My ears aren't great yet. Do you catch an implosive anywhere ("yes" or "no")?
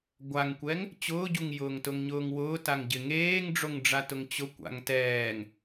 no